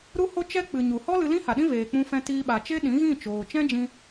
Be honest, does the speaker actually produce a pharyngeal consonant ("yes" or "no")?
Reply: no